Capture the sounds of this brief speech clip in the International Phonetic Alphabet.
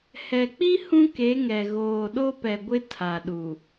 h ɛ˨ k͡p i˦ h ũ˦ k e˨˦ ŋ ɛ˨ ɣ oː˨ ɗ o˦ p ɛ˨ ɡʷ ɪ˦ tʰ a˨ ɗ u˨

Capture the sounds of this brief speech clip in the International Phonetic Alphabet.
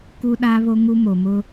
k u˦ ɗ aː˦ β o˦ ŋ u˦ m o˨ m ʊ˦

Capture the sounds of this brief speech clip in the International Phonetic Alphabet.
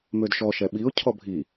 m ø d ʃ ɔ ʃ ɛ ɓ i ʊ̯ cʰ ɔ bʱ i

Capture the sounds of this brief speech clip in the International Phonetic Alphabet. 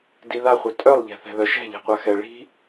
d i ð a χʷ œ tʼ œ lˠ ʎ ɛ̤ θ ɛ̤ ð œ ʃ ɛ̤ ʎ ɛ̤ qʷ a x ɛ ɭ i̤

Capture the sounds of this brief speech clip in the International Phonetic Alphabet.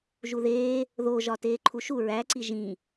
ʒ u ð eː | ð o ʒ ɒ t eː ǃʰ u ʃ u ɹ æ ǀ i ʒ ĩ

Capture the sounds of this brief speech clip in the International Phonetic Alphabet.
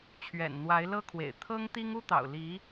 t͡ɕʰ ɥ ɛ̰˨˩ n n̪ w a˧˥ ɪ̯ l ɤ˥ kʰ w ḛ˨˩ ɪ̯ t̪ʰ ɤ˥ ŋ t̪ i˥ ŋ u˥ t̪ ɑ̰˨˩ ʊ̯ l i˧˥

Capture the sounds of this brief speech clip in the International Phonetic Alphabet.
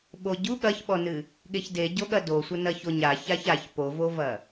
ɓ o ɟ u ɠ ɐ ç ɓ ɔ n ɨ | ɠ e ç d e ɟ o ɠ ɐ d o sʷ ɐ n ɐ ç o ɲ a ç a ç a ç p o v o v ɐ

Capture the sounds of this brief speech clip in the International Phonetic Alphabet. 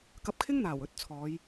k ɐ˧ p̚ kʰ ɪ˥ ŋ n̪ aː˨˩ w ɵ˧ t̚ t͡sʰ ɔː˨˧ j

